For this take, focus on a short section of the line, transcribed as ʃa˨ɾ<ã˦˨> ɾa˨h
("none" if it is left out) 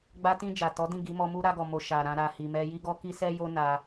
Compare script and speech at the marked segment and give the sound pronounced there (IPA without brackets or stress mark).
ã˧